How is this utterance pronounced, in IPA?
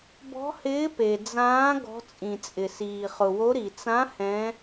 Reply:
b ɔ̤˧˥ h ɪː˧˥ p e˩ d͡z ãː˧˥ ɡ ɔ̤˧˥ t͡sʼ ĩ˩ t͡sʼ ɪ˩ s iː˩ χ ʊ˩ w o˧˥ ɾ i˩ t͡s ã˧˥ h ɛ̃˧˥

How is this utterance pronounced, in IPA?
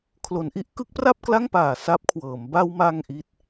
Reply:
kʰ l o˩˦ n ʔ i˦˥ ʔ k ɯ˦˥ k̚ p r a˥˩ p̚ k l a˥˩ ŋ p aː˨˩ s a˦˥ p̚ kʰ w ɤː˩˦ m b a˧ w m a˧ ŋ ʔ i˥˩ t̚

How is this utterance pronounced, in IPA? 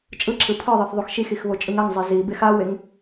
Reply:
t͡ʃʼ ɯ ǁ ɯ pʰ ɯ ðˤ i θ ðˤ u x ʃ i x i x β o t͡ʃʼ ɯ ŋ a ŋ zˤ e z i b e x a w e ŋ

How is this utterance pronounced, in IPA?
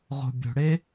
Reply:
ʁ o̤ bʲ o̤ ɽ e

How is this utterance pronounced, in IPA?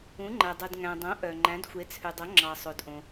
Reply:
ũ˩˧ ŋ͡ǃ æ˩ dˤ u˩ d ŋ æ̃˩ dˤ õ˩˧ ʔ œ˩ ŋ͡ǃ æ̃˩˧ d xʷ e˩˧ t͡sʰ ʉ˩ dˤ o˩˧ ŋ͡ǁ ɑ˩ sˤ o˩ d ʔ õ˩

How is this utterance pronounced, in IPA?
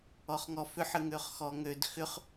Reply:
ɔ χ ŋ ɔ f ʏ ħ ə ŋ ø χ x ɔ ŋ ø d x ʏ χ

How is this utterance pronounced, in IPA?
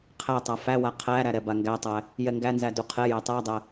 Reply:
qʰ æ tˤ a f æ w a qʰ æ ɾ æ ɾ ɛ b a ŋ ɡ æ tˤ æ | j ɛ ŋ ɡ æ n z æ d u qʰ ɛ j æ tˤ æ dˤ æ

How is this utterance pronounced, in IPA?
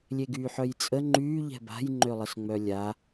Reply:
lʲ e ɡ yː ħ œ j t͡sʼ ə ŋ͡ǃ yː ʎ ɛ̤ b a̤ j ŋ͡ǃ ø lˠ ə s ŋ͡m œ lʲ a

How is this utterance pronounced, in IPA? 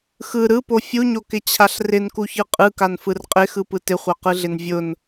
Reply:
x ɯ ɾ ɯ p o fʲ u ɲ o k ɪ t͡ɕʰ a ɬ r ɪ n k u ç ɯ qʼ ɯ k a n f ɯ r qʼ ɪ x ɯ p ɯ t ɪ χʷ a q ɯ ɮ ɪ n vʲ ʊ n

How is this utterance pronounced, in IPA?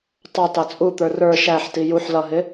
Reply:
tˤ ɑ t ɑ t͡sʼ u t̪ ə˞ r ə˞ ʃ æ ħ t i j u ħ l ʌ ɦ ɪ

